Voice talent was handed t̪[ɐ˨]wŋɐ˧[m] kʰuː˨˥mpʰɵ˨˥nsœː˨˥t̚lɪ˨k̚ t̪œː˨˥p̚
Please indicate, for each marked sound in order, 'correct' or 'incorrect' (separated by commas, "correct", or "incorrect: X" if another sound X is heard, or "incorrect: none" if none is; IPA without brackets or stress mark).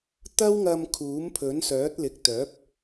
incorrect: ɐ˥, correct